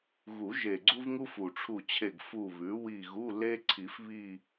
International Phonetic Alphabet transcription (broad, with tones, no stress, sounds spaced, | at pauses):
ɣ u˨˩˦ ʒ e˨˩ ɡ͡ǀ u˥ v ŋ u˥ f u˨˩ ʈ͡ʂʰ u˦˨ t͡ɕʰ e˦˨ ɡ f u˦˨ β ʉ˩˥ w i˦˨ ɣ u˧˥˧ l e˥ ǀʰ i˨˩˦ f β i˦˨